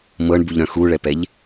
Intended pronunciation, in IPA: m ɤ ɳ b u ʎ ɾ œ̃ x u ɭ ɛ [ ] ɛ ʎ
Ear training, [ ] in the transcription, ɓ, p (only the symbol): p